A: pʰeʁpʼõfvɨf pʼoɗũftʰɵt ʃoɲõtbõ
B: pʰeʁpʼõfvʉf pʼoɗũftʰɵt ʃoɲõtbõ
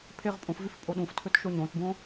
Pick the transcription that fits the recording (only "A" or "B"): B